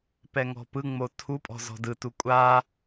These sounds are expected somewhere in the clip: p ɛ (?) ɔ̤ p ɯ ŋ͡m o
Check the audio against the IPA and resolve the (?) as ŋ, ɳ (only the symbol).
ŋ